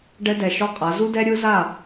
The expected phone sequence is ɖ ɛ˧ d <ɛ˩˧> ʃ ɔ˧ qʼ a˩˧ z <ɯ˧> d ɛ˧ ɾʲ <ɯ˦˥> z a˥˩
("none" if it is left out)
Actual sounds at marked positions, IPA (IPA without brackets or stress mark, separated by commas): ɛ˨˩, u˧, ɯ˦˥